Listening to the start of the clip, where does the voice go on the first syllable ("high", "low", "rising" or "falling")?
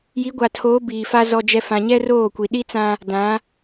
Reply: rising